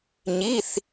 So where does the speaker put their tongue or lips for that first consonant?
palate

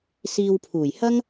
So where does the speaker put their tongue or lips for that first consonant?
tongue tip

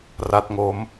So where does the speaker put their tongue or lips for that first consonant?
tongue tip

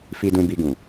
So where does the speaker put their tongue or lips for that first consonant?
lips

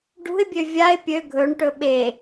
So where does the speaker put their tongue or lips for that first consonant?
retroflex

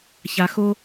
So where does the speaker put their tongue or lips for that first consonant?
palate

